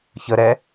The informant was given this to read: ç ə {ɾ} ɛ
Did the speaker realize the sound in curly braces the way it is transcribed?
yes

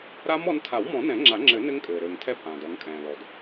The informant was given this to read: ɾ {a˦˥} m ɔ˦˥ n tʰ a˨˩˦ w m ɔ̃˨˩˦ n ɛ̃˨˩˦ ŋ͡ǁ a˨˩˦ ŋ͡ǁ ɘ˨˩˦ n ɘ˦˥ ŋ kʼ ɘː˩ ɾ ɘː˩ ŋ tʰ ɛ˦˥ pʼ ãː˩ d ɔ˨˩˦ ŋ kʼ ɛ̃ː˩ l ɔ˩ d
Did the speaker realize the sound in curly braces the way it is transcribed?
yes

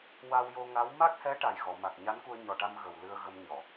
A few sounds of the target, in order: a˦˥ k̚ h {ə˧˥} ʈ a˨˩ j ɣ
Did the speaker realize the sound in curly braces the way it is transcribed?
no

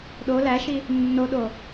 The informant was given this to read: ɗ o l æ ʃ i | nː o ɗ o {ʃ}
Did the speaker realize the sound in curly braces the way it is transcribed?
no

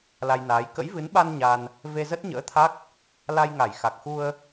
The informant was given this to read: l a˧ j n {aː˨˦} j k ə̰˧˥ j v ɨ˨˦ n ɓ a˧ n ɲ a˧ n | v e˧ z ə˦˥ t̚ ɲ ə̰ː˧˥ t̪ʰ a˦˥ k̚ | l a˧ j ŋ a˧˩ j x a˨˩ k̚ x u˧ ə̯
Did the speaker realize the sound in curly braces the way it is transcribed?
yes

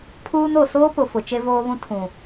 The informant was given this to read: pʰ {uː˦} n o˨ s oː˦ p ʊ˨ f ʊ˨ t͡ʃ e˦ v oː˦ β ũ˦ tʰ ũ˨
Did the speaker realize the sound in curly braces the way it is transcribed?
yes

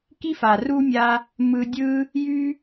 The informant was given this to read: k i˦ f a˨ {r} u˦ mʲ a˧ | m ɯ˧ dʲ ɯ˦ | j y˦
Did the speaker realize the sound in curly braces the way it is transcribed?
yes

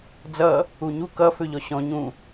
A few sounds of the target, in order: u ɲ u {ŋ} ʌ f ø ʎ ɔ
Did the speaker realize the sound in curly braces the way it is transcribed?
no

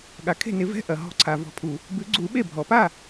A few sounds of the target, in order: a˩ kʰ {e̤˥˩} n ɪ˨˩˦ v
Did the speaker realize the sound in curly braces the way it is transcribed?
yes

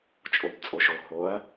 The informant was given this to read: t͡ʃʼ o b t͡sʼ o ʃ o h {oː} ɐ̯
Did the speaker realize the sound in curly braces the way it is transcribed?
no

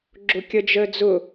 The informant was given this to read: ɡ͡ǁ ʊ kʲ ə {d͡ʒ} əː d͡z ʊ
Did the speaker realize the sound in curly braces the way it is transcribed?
yes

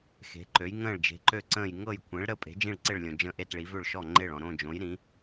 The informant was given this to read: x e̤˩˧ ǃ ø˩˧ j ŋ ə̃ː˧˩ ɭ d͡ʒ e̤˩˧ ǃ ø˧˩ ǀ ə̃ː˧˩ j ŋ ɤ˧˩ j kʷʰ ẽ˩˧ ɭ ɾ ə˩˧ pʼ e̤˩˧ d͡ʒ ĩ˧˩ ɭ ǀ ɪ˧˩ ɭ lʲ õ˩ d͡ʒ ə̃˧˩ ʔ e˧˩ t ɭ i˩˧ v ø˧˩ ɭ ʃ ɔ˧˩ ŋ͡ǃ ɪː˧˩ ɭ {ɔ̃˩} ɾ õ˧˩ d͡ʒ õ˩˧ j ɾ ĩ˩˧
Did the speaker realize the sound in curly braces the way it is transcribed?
yes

